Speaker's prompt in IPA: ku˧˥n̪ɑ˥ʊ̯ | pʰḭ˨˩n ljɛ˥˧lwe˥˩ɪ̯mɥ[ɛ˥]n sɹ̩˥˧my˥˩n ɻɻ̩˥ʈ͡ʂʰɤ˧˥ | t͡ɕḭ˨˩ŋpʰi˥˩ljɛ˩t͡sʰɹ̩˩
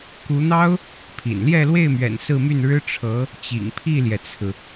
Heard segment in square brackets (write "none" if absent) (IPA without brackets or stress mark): ɛ̰˨˩